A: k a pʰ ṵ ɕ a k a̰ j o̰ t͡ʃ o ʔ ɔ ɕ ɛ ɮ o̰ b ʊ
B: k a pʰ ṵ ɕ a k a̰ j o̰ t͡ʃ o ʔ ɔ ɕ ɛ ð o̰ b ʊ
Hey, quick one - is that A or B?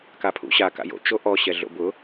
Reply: A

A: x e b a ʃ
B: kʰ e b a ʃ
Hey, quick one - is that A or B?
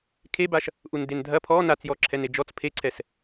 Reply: B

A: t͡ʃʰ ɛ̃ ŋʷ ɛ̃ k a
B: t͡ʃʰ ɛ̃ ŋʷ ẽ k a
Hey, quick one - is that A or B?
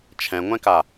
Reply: A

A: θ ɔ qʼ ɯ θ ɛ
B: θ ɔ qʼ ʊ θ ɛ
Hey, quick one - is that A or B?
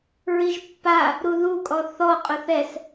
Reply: B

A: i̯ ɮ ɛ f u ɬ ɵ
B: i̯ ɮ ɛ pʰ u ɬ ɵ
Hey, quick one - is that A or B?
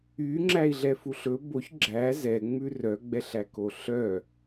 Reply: A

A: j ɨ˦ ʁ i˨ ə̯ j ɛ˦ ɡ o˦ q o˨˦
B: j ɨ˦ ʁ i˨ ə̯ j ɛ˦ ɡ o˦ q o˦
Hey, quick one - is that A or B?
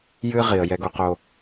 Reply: B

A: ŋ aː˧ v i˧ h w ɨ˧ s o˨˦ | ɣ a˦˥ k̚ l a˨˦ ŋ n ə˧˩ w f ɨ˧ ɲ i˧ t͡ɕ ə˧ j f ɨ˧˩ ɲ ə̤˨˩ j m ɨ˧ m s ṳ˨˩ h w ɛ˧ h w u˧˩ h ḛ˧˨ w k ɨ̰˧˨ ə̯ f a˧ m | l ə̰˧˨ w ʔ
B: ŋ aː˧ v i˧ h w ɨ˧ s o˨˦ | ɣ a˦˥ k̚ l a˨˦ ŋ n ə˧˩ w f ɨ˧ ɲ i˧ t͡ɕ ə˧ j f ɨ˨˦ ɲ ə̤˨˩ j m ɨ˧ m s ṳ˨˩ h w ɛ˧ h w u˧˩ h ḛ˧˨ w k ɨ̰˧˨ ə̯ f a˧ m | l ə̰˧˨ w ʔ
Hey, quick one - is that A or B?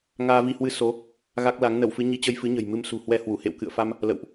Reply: B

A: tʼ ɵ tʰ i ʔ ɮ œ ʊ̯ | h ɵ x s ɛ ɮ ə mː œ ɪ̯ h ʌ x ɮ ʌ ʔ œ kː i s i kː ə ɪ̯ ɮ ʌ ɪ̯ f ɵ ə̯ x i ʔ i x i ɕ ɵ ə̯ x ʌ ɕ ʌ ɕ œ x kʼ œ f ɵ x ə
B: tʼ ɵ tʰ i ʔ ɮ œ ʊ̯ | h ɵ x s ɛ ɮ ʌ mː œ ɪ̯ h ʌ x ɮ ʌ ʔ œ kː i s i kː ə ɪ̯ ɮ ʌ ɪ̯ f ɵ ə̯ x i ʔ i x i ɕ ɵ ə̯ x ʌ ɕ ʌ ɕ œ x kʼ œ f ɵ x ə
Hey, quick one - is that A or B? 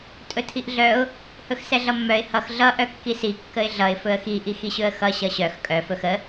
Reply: B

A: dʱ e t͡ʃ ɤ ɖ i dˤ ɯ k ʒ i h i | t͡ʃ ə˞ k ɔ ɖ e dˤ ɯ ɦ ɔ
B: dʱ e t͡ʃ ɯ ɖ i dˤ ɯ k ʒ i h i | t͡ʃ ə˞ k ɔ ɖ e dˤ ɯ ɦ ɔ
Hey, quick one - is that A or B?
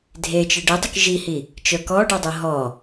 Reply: B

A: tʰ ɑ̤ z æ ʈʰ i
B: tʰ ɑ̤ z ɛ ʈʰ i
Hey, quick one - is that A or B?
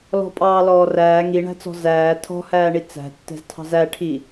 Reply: A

